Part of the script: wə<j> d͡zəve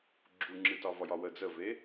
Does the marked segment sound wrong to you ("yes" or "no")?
yes